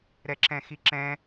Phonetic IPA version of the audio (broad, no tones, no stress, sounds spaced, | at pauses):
ɾ ɛ ǁ ɛ̃ x i ǁ ɛ̃